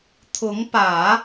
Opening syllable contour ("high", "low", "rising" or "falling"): rising